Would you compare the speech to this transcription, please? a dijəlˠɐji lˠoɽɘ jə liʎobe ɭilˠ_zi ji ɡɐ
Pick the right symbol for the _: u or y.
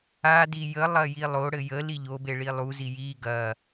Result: u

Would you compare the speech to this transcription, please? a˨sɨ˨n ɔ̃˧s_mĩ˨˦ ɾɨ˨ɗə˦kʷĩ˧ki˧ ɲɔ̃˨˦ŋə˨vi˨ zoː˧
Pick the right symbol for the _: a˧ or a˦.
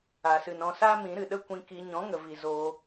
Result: a˦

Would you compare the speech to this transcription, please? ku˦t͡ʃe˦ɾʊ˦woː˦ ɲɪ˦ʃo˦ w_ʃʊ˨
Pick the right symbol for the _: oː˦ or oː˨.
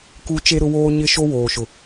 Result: oː˨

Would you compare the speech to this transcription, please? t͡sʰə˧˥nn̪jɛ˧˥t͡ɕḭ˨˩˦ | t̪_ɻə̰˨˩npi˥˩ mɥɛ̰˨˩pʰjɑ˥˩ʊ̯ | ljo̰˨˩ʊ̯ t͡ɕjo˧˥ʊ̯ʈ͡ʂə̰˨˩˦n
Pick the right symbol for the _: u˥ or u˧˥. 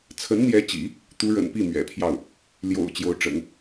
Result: u˧˥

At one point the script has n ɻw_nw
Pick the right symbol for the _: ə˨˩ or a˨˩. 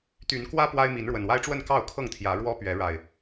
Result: ə˨˩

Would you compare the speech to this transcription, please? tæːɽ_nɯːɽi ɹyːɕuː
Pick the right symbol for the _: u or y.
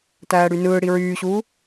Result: y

